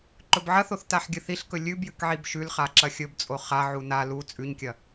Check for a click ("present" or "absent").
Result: present